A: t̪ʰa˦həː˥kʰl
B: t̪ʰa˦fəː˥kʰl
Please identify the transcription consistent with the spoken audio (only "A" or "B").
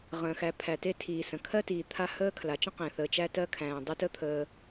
A